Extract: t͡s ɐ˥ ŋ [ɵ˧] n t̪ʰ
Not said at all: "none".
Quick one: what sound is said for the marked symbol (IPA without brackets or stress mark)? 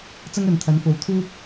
ɵ˨˧